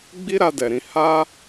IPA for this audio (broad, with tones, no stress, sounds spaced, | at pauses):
ɡ͡b i˦ ɾ a˧ d ɛ˨ ɾ ĩ˨˦ h a˦